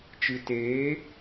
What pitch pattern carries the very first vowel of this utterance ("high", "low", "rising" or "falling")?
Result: low